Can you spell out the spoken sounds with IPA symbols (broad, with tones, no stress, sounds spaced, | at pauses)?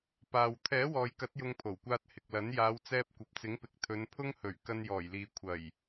p aː˨ w t̪ʰ ɛː˨˥ w ɔː˨ j k ɐ˨˥ t̚ j ʊ˧ ŋ pʰ o˨˩ w kʷ aː˧ t̚ h ɪ˨ k̚ l ɐ˨˥ n j aː˨˧ w t͡s ɛː˧ p̚ kʷ ɐ˨ p̚ t͡s ɪ˨˥ ŋ p ɪ˨ k̚ t̪ʰ ɵ˨˧ n pʰ ʊ˥ ŋ h ɵ˨˩ ɥ k ɐ˧ n j ɔː˨˩ j l iː˨ kʷʰ ɐ˨˩ j